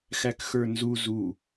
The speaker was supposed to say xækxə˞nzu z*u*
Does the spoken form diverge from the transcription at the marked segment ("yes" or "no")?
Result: no